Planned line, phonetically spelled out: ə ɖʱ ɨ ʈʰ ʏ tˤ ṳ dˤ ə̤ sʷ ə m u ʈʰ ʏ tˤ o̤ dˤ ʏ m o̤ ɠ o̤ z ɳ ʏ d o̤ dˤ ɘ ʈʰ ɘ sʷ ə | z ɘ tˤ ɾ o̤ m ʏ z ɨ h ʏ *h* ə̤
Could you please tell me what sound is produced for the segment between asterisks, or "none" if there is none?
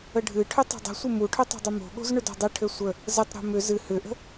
ʔ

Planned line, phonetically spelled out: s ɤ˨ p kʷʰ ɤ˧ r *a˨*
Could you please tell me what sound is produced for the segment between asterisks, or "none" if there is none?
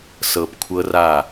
a˦˨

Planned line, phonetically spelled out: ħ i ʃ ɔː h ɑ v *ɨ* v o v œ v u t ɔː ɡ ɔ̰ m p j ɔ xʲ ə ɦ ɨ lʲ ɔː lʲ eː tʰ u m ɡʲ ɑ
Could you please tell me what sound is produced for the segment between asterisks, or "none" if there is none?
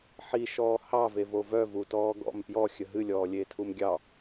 e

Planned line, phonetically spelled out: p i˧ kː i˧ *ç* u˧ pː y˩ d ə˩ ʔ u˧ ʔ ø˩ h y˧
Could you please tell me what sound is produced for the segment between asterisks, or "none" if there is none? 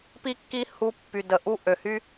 h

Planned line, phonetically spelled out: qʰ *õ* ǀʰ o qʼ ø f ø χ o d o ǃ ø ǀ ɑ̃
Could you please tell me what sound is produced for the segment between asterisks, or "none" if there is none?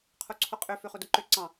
o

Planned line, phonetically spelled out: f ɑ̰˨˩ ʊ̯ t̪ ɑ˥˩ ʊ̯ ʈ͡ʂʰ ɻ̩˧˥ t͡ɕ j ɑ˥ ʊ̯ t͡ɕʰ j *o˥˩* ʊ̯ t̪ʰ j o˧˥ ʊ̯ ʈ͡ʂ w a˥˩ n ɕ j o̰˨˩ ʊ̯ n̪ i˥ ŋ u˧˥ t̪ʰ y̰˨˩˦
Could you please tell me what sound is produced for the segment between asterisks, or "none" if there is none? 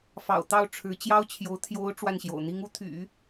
o˧˥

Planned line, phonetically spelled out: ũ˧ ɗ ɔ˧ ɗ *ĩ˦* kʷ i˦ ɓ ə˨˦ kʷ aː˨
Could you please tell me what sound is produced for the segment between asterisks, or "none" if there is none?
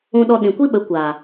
ĩ˨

